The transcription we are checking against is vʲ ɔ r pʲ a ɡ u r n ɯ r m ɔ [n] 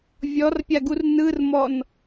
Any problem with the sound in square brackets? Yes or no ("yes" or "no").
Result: no